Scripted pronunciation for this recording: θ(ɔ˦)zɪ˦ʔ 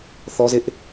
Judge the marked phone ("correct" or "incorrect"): correct